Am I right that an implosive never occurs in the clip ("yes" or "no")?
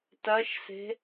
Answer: yes